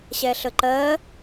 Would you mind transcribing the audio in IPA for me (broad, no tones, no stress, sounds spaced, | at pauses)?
ɕ ɛ ɬ ə ǃ ɜ